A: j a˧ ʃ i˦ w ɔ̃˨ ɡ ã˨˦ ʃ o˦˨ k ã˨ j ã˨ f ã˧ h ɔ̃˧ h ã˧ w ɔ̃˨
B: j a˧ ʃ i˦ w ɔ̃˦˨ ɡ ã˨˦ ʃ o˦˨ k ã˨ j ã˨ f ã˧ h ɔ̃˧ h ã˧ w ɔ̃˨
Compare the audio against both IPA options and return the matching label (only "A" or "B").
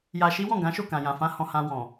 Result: B